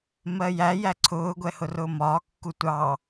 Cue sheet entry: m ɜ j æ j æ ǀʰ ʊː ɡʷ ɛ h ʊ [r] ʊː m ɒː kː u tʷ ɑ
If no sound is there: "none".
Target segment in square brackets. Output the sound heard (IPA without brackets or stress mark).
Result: r